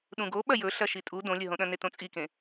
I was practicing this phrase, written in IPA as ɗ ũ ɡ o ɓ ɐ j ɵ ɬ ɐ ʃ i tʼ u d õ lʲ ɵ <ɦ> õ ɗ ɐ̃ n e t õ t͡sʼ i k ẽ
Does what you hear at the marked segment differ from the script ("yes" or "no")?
no